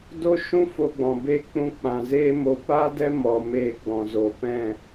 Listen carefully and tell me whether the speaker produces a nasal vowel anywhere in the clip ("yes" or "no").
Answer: yes